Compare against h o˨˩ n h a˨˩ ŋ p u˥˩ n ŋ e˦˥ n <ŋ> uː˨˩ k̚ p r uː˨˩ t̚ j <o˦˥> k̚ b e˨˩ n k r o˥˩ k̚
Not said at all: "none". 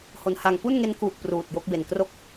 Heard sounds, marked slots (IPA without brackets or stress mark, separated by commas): k, o˦˥